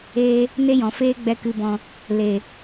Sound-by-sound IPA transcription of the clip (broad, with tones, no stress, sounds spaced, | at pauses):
eː˧ | n e˦ j ɔ̃˨ f eː˦ ɡ͡b ɛ˧ k ɨ˨ b ɔ̃˨ | l e˨